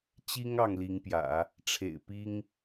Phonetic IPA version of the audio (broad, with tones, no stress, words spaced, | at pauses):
t͡ɕi˥ŋ ɑ˥˩ŋli˧˥ŋpjä̰˨˩˦ | ʈ͡ʂʰḛ˨˩ɪ̯pi˥ŋ